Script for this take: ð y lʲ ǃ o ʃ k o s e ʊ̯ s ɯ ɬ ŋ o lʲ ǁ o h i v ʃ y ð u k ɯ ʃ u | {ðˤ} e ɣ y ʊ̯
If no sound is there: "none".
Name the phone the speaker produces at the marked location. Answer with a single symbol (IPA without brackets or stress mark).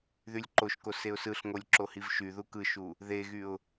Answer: ð